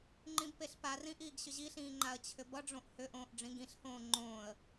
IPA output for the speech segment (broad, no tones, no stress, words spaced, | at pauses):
ŋ͡ǃĩbpeɬparĩ ʔiːɡɕʏʑiɬĩː ŋ͡ǃaə̯t͡ɕʰʏbʌɖ͡ʐõʔ hʏʔõːʔ ɖ͡ʐĩɡĩɬhõː ŋ͡ǃõːə̯